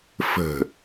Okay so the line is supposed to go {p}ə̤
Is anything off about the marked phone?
yes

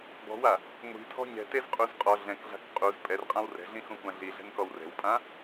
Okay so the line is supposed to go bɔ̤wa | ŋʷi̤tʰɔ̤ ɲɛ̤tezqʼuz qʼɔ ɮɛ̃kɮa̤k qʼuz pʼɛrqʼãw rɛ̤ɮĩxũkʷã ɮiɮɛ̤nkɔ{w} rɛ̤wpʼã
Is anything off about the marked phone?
no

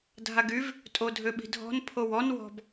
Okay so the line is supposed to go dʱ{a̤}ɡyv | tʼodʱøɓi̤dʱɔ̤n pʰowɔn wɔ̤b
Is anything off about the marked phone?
yes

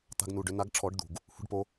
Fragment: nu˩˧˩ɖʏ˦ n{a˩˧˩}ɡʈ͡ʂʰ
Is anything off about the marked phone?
yes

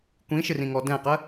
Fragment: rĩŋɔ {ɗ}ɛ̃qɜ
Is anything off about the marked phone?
yes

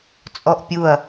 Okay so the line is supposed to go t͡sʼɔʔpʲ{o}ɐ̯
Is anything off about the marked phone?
yes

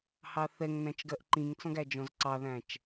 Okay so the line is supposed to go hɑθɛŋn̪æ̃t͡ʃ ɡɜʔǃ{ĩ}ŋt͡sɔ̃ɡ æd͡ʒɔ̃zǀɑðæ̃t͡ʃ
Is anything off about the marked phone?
no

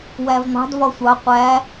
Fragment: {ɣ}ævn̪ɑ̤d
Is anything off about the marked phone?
yes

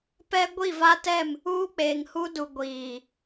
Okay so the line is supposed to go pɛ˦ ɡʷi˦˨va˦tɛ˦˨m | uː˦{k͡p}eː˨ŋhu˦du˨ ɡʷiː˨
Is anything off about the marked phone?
no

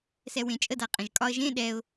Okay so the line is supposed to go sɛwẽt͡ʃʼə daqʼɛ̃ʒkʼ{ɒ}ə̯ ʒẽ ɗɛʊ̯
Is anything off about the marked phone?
no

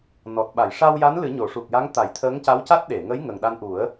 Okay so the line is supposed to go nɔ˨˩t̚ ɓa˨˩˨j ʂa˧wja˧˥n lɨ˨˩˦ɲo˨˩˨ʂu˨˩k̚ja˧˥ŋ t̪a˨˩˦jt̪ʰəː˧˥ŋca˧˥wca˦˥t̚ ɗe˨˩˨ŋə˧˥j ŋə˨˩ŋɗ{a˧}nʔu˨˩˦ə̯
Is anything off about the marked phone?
no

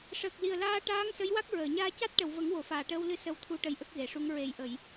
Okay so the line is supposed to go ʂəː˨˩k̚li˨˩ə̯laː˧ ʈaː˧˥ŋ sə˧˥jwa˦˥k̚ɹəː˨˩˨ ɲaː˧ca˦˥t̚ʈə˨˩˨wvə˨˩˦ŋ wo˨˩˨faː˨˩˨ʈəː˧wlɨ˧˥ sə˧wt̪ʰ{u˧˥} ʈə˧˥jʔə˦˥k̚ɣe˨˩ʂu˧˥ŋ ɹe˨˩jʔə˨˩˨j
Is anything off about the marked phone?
no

